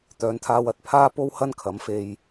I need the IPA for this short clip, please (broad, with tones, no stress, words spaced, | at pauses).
t̪œː˨˧nt̪ʰaː˧wɐ˨˥t̚ pʰaː˥po˥whɐ˥n kʰɐ˨˥mfe˧j